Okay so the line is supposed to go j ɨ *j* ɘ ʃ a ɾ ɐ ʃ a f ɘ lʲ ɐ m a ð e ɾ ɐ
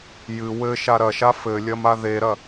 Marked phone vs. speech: incorrect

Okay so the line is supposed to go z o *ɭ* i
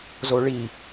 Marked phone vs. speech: correct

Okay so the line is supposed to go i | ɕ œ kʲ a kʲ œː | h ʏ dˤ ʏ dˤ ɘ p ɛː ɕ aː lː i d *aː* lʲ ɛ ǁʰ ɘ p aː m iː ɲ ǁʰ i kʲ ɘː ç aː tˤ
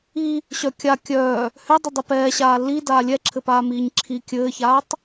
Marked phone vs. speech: correct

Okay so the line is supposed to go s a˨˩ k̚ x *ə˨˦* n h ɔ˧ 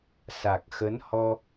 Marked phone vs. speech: correct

